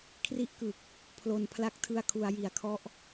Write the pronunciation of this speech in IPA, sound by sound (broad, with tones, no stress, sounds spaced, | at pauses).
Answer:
kʰ r i˦˥ ʔ k ɯ˨˩ k̚ | pʰ l o˨˩ n pʰ l a˦˥ k̚ tʰ ɯ˧ a̯ kʰ u˩˦ a̯ j i˩˦ a̯ kʰ ɔ˦˥ ʔ